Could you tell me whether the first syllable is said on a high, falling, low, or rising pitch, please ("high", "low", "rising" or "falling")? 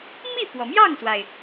falling